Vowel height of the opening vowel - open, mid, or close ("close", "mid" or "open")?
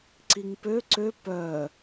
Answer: close